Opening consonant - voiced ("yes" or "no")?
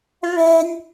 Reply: yes